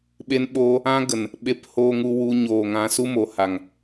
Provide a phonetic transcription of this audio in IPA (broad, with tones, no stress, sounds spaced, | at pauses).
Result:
ɓ e˦ n ɓ oː˦ | ã˦ ɡ ə˨ n | ɓ e˧ p h oː˧ ŋ u˧ w u˧ ɲ oː˨ ŋ ã˧ s u˦ m o˨ h a˨ ŋ